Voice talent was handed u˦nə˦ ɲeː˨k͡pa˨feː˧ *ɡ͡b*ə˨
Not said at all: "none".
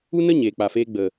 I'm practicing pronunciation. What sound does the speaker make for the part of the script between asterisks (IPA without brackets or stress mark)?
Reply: ɡ͡b